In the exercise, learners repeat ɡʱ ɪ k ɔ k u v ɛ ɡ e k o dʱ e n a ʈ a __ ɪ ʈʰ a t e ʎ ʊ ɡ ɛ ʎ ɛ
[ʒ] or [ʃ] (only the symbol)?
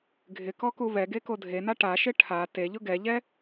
ʃ